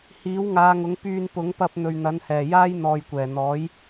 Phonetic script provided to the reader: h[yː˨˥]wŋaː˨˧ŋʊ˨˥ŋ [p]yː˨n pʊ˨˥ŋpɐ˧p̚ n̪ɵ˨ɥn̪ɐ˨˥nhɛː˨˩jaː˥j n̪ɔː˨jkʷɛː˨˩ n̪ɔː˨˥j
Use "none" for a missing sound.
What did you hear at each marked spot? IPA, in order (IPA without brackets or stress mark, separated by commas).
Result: iː˨˥, p